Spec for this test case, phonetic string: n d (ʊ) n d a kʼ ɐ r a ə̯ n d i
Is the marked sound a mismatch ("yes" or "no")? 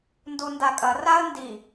yes